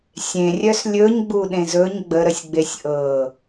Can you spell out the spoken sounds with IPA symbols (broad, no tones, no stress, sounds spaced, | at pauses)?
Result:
sʲ ẽ rʲ œ s lʲ ɵ ɲ ɡ͡b u ɗ ẽ z ɵ ɲ ɡ͡b ə ɾ ə sʲ ɡ͡b e sʲ ʔ ɤ